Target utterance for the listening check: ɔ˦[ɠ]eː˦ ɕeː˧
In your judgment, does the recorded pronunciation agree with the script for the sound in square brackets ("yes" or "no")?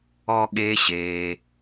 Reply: yes